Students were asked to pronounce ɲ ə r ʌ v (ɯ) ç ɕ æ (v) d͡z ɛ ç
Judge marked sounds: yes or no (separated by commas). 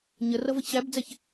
no, no